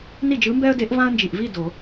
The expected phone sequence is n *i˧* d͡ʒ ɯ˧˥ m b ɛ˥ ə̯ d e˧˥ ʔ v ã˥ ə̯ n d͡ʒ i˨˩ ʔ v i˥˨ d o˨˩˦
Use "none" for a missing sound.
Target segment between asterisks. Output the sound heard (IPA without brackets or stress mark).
i˥˨